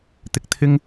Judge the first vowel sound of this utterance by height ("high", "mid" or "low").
high